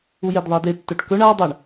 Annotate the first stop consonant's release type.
plain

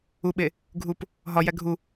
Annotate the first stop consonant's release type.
implosive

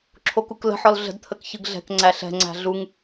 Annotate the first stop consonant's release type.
click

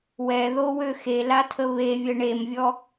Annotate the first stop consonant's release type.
aspirated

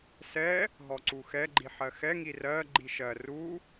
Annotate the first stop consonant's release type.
click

